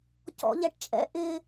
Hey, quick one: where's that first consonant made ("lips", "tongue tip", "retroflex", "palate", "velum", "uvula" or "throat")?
palate